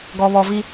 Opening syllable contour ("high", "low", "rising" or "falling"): low